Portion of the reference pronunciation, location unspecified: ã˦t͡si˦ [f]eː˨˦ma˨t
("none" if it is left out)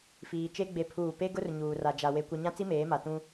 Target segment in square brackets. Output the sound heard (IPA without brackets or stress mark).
m